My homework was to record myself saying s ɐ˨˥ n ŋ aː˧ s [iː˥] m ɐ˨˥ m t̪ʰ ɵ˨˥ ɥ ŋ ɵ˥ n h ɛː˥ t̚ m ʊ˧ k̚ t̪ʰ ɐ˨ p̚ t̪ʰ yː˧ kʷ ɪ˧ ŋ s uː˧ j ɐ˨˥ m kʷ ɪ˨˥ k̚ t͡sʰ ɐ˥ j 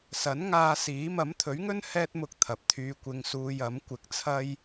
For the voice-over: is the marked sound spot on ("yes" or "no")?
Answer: no